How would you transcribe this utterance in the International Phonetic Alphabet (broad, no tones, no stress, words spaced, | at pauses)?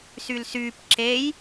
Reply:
sylsyːp ǁeːj